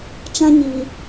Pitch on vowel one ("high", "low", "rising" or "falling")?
high